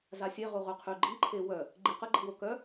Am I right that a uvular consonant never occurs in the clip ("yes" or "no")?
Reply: no